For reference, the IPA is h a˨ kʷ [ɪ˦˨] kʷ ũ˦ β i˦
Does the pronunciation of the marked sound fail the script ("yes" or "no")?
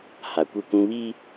no